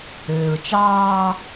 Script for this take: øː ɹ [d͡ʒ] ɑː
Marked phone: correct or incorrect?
incorrect: t͡ʃ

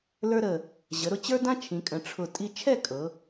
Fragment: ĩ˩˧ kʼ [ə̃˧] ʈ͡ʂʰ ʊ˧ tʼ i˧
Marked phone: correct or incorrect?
incorrect: ə̃˩˧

